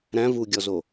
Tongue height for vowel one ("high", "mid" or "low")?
low